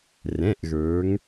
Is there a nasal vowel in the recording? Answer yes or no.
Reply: yes